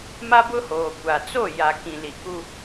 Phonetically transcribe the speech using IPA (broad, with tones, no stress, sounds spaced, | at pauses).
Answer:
m a˦ b ʊ˦ h oː˨ kʷ a˨ t͡s o˦˨ j a˨ k ĩ˨ l i˨ k u˦